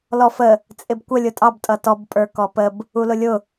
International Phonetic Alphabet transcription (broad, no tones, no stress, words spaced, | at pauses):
lɔfə | t͡sʼɪbkʷə lʲʊtʼɑb tʼʌtɔb pʼə˞kɔpəb | ulʊlʲʊ